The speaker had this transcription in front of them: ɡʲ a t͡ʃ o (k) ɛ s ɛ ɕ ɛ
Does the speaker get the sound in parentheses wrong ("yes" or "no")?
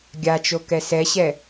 no